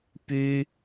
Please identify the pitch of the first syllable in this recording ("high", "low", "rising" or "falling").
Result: high